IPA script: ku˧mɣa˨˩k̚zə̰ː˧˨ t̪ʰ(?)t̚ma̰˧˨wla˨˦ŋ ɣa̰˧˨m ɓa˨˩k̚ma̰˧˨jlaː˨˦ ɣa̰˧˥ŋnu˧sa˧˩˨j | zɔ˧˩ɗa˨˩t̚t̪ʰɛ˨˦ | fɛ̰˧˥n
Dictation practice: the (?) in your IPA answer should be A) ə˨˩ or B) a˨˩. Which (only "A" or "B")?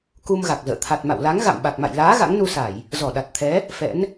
B